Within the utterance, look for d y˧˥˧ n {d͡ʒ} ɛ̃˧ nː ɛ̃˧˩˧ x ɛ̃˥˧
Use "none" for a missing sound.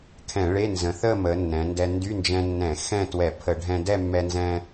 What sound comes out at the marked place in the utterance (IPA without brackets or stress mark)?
d͡ʒ